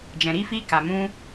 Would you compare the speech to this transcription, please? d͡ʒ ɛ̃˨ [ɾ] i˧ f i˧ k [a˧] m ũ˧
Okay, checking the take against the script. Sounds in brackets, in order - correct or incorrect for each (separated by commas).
correct, incorrect